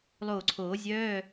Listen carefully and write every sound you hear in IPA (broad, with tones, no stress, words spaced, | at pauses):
lˠoː˧˩ǀʰoː˨˩˦zʲœː˧˥˧